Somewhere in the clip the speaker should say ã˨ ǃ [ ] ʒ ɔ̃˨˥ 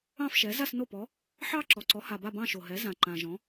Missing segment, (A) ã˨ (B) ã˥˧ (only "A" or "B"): A